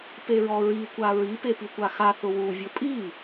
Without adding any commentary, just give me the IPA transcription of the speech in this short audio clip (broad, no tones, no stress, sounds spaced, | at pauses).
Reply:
p e ɹ ɔ ɹ i kʷ a ɹ i p e p i kʷ a x a θ ʊ w u vʲ ʊ pʼ i